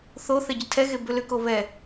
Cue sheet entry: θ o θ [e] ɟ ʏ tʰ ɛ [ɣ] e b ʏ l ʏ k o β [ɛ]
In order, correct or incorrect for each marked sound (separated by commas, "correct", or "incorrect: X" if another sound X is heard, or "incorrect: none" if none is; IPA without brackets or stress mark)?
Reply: incorrect: ɛ, correct, correct